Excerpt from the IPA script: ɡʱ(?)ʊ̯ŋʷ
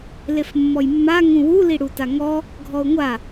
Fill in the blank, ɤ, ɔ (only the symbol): ɔ